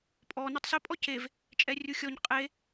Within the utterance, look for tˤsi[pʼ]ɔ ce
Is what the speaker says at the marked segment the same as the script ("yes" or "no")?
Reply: yes